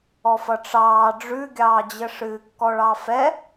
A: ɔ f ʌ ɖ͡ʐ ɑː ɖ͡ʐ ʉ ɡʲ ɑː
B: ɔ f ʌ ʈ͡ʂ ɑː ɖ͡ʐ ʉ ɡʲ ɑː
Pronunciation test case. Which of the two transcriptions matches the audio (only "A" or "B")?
B